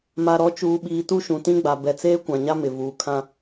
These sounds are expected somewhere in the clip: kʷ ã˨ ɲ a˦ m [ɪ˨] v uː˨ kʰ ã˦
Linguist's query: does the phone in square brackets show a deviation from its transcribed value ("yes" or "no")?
no